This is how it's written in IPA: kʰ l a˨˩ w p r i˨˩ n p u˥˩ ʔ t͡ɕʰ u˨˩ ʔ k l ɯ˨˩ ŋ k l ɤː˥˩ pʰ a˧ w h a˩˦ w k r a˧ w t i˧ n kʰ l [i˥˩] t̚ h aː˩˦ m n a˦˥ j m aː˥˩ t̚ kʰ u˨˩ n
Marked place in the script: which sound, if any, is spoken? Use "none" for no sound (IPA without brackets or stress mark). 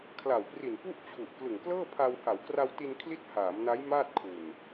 i˥˩